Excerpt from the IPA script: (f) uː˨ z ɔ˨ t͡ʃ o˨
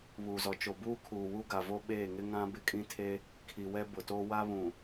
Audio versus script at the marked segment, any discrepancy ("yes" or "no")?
yes